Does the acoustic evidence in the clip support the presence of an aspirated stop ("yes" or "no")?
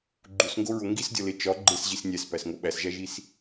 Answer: no